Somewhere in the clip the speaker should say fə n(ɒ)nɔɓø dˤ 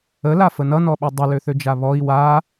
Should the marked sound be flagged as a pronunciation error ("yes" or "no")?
yes